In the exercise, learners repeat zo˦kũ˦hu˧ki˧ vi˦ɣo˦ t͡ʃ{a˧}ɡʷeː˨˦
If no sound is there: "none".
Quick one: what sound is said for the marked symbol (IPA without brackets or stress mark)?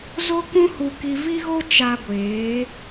a˧